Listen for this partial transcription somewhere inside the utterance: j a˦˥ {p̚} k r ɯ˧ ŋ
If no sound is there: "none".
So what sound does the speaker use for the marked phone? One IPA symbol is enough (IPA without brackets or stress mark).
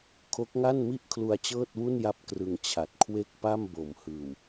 p̚